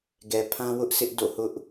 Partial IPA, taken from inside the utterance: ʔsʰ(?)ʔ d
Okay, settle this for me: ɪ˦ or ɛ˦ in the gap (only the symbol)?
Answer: ɪ˦